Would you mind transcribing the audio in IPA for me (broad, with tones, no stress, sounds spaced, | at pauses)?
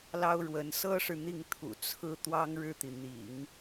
l ɑ˥ ʊ̯ ɻ w ə˧˥ n s ɤ˥ ʂ ɻ̩˨ n̪ i˥˩ ŋ t̪ʰ ṵ˨˩ t͡sʰ ɹ̩˥ t̪ w ɑ˥ ŋ ɻ ɻ̩˥˩ t̪ i˩ n̪ ḭ˨˩˦ ŋ